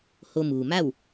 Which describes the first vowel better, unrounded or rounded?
rounded